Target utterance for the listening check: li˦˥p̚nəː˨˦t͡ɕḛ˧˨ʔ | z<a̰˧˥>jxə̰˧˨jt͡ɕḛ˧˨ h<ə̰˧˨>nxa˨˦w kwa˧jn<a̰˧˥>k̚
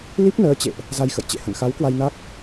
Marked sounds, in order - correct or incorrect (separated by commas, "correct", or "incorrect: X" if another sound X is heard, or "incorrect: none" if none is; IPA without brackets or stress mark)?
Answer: incorrect: a˧, correct, incorrect: a˦˥